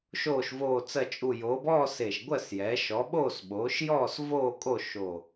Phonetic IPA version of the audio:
ʃ oː˨˩ ʃ v oː˨˩ t͡s ɜ˨˩ t͡ʃʼ u˨˩ j oː˩˧ b ɔː˦˨ s e˨˩ ʃ ɡʷ ɜ˦˨ s j ɛː˩˧ ʃ ɔ˩˧ ɓ oː˦˨ s ɓ oː˩˧ ʃ j ɔː˦˨ s v oː˦˨ kʼ o˦˨ ʃ o˨˩

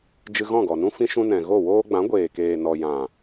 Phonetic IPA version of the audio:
d͡ʒ ɨ˧ ɣ ɔ̃˦˨ ɡ ɔ˨ n ũ˦ f ĩ˧ ʃ ũ˧ n ɛ̃˨ ɣ o˦˨ w oː˦ ɡ͡b ã˨˦ ɡʷ eː˨ k eː˨ n ɔ˨ j ã˨

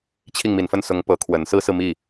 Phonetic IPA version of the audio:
t͡ɕʰ i˥˩ ŋ m i˨˩ n f ə˥˩ n s ʊ˧˥ ŋ p ɤ˧˥ kʰ w ə˨˩ n s ɹ̩˥ s ɹ̩˨ m i˥˩

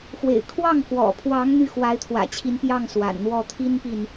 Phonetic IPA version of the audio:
x w ḛ˨˩ ɪ̯ kʰ w ɑ˥˩ ŋ k w ɔ̰˨˩ pʰ w ɑ˧˥ ŋ n̪ y˥˩ x w a˧˥ ɪ̯ t̪ʰ w ä̰˨˩ t͡ɕʰ i˧˥ n p j ɑ˥˩ ŋ s w a̰˨˩ n n̪ w ɔ˥˩ t̪ʰ i˥ n p i˨ n

